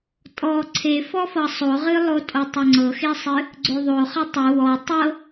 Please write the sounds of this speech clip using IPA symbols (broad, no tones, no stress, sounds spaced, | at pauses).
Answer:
tʼ ɔ ǀʰ e f ɔ f ɤ sˤ o ʁ ɨ lˠ o tʼ o tˤ o ŋ͡ǀ ɤ x e sˤ ɨ | ɡ͡ǀ o ðˤ o χ ʌ tˤ ɨ w ɔ tˤ ɤ